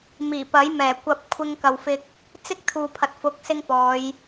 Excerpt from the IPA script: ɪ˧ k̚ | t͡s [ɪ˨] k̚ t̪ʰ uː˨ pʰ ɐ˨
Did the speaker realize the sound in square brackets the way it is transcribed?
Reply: no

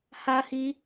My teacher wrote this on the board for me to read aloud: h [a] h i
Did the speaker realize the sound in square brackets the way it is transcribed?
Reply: yes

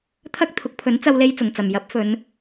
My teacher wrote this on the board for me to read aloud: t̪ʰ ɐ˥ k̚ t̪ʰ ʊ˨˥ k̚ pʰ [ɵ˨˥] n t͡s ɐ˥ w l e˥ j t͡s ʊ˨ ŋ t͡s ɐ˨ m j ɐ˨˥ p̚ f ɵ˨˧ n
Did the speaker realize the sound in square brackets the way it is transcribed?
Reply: yes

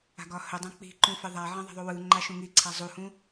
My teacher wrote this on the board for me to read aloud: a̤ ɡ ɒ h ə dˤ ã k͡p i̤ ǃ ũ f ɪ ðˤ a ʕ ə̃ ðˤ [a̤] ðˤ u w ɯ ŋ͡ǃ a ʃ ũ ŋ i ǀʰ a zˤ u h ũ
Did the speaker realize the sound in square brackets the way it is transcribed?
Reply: no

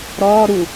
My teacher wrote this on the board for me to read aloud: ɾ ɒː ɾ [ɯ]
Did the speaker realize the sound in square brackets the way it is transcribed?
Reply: no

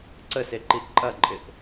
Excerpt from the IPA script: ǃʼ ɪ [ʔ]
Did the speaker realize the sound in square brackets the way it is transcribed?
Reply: yes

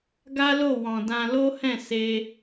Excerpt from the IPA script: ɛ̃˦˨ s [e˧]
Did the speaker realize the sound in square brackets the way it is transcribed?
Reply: yes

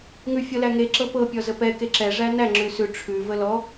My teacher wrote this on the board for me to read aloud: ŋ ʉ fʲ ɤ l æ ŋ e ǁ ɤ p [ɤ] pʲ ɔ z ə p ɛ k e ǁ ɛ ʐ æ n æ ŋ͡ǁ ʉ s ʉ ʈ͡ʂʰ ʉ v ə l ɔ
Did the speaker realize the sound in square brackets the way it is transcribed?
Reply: yes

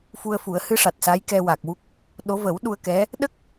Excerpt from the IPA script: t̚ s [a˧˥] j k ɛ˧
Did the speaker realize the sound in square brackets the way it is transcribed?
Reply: yes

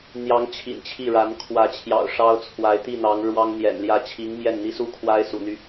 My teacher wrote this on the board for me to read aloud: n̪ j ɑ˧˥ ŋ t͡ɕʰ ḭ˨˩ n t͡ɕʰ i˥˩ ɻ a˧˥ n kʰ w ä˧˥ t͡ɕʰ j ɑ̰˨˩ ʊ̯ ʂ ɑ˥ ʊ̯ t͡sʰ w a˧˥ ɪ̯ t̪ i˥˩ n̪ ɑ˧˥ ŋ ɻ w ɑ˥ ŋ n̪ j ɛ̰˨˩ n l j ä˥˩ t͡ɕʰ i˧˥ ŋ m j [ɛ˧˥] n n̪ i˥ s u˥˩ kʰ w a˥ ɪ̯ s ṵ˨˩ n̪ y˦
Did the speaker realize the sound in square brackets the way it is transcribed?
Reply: no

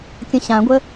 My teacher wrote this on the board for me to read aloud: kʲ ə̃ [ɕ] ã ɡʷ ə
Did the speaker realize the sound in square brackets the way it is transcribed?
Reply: yes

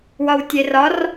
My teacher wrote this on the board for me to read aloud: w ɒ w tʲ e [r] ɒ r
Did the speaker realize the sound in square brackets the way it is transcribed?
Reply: yes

